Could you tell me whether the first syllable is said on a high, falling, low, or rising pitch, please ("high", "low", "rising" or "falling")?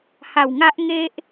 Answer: low